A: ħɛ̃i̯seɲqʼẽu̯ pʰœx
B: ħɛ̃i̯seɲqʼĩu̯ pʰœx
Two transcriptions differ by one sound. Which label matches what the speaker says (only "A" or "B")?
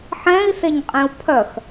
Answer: A